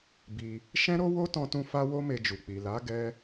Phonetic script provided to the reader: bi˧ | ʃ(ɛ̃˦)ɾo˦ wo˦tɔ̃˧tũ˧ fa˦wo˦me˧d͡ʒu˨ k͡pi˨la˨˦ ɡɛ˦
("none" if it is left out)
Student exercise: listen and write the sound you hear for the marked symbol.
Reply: ɛ̃˦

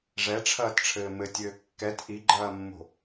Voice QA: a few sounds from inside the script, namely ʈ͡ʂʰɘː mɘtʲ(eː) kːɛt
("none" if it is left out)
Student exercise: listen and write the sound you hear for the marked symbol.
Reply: ɘː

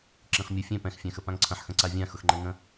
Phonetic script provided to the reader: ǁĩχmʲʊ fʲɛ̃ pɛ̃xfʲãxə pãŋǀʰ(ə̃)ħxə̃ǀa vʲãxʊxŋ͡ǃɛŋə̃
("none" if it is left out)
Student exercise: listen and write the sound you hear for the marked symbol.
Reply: ə̃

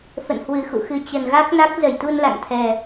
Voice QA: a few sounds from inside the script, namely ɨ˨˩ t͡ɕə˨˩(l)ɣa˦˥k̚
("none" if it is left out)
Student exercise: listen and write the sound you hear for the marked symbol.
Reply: n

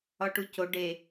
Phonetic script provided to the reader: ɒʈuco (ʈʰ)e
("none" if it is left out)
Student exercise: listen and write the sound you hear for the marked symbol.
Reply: ɖ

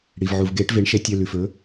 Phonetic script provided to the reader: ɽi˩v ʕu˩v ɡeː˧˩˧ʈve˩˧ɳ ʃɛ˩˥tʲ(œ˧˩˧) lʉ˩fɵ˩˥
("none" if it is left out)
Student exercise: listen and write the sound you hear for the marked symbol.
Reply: œ˩˧˩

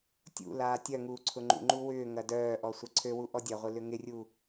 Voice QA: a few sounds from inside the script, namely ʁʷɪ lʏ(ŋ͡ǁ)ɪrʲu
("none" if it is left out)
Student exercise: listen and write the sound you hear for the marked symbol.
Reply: ŋ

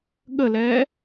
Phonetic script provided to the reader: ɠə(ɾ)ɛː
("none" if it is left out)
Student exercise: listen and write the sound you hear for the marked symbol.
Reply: l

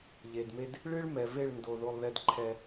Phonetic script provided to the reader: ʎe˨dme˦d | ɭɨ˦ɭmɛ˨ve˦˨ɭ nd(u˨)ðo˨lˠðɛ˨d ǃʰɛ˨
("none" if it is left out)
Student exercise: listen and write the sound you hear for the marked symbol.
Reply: o˨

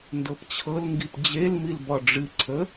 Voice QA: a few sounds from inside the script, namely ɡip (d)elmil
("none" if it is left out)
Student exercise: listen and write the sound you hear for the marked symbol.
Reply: d͡ʑ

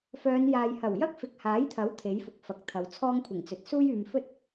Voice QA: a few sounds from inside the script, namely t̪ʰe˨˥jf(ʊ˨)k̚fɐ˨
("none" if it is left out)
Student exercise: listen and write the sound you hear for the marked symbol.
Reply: ʊ˨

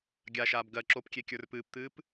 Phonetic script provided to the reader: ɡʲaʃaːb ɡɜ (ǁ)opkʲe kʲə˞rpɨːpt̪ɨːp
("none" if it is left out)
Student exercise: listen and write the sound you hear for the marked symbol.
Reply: ǁ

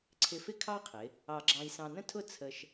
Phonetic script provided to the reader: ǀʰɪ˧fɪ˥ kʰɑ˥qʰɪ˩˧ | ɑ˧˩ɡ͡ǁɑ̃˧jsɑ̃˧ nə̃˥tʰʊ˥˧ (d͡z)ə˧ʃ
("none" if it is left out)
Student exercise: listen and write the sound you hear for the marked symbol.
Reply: t͡sʰ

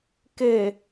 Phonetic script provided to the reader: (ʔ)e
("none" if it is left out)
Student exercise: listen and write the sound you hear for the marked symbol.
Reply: k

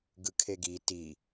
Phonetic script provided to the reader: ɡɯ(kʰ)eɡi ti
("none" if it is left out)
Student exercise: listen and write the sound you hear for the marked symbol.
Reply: kʰ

